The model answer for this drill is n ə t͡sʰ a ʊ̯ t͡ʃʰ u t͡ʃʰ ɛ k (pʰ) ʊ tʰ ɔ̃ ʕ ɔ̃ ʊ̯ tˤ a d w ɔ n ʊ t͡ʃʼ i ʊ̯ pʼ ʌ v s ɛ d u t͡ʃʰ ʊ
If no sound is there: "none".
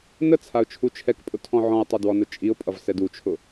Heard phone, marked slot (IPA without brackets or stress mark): pʼ